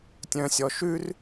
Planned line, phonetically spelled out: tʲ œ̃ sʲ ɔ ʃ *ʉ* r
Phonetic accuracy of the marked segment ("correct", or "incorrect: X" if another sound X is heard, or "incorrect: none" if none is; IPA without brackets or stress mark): correct